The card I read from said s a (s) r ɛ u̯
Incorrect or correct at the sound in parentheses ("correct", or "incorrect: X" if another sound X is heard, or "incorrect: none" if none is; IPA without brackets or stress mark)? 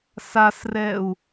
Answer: correct